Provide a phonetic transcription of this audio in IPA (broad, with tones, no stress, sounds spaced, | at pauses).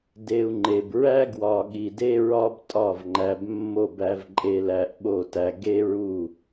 d e˧ u̯ ŋ͡ǃ e˨ b ɹ æ˦ ɡ w ɒ˨ ɠ i˨ d e˦ ɹ ɒ˦ b tʼ ɒ˦˨ v ŋ͡ǃ æ˧ b mː o˦˨ b æ˧ v ǃʼ e˧ l æ˧ ʔ ɓ o˦˨ t æ˧ ɡ e˦ ɹ u˦˨